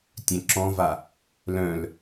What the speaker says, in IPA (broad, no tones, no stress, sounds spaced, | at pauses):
tʲ œ̃ ǁ ɔ̃ v a | l œ̃ l